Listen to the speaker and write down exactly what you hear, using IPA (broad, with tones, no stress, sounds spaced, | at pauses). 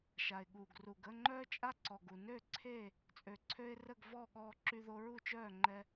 ʃ a˨ ɪ̯ ɠ uː˨ ɡ r u˨ ɡ ə˥˨ ŋ͡ǃ œː˦ t͡ʃʼ a˦ ǀ ɔ˨ ɡ u˨ n ø˥˨ ǀʰ e˥˨ | t͡sʼ ø˨ ǀʰ ø˦ ɪ̯ r ə˥˨ ɡ v ɔː˥˨ ɠ ɔː˦ ǁ y˦ ð o˦ ɹ u˥˨ t͡ʃ œː˥˨ ŋ͡ǃ ɛ˦